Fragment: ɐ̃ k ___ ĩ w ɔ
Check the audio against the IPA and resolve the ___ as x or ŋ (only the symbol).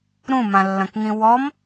ŋ